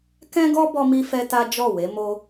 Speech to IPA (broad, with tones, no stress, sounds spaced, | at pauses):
k ɛ̃˦ ɡ ɔ˦ b ɔ˦ m i˦ f ɛ˦ t a˦ d͡ʒ ɔ˦˨ w e˨˦ m o˦